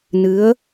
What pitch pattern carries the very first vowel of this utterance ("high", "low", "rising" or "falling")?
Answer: rising